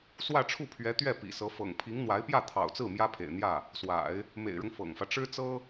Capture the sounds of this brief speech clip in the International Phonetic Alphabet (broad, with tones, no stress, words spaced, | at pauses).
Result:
swä˥˧ʈ͡ʂʰu˥˩pʰɥɛ˧˥t̪ɥɛ˥˩ pḭ˨˩sɤ˧˥ fɤ̰˨˩ŋpʰi˧˥ŋ n̪wa˧˥ɪ̯pjä˥˩ t̪ʰɑ̰˨˩ʊ̯t͡sɹ̩˥˩ mjä˥pʰḛ˨˩ɪ̯n̪jä˥˩ | swa̰˨˩˦ɪ̯ | mḛ˨˩ɪ̯ɻʊ˦ŋ fɤ̰˨˩ŋfä˦ ʈ͡ʂɻ̩˥t͡sɤ˥